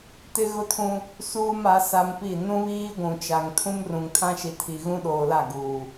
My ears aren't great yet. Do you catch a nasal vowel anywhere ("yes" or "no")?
yes